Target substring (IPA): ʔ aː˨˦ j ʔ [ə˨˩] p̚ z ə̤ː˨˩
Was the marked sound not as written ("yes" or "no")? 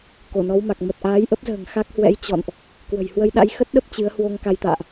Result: yes